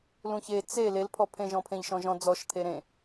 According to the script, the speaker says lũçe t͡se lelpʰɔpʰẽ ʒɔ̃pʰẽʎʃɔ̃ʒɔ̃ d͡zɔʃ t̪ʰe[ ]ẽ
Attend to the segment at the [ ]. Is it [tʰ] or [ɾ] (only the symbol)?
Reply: ɾ